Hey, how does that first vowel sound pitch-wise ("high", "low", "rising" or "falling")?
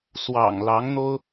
low